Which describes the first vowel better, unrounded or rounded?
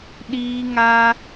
unrounded